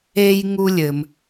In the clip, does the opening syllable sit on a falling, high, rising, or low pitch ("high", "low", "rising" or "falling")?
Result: high